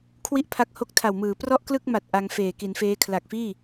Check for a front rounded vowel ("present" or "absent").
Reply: absent